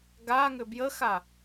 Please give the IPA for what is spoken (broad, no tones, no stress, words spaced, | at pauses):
ɡaŋʏ bjəxa